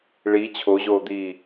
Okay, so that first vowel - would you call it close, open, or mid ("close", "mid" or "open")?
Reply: close